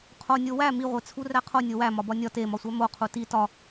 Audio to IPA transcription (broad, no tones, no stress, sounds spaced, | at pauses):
qʰ o nʲ o w æ m i ʁʷ e t͡sʰ u r æ qʰ o nʲ o w æ m ɒ b ɒ nʲ ɒ t e m ɒ sʷ æ m o qʰ u t i t ɒ